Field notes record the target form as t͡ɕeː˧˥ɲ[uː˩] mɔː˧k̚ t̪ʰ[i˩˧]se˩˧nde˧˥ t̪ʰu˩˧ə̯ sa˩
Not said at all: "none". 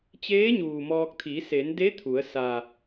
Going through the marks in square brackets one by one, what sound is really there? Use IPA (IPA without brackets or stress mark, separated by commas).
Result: uː˩, i˩˧